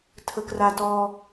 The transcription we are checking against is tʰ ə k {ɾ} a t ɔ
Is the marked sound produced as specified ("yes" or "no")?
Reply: no